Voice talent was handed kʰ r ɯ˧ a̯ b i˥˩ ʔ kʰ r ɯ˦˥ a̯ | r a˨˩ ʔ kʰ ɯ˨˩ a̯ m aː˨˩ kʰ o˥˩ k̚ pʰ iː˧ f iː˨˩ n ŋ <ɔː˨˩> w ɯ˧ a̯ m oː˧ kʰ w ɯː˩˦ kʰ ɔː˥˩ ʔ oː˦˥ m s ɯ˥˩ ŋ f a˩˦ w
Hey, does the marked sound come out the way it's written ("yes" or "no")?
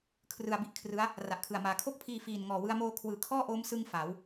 yes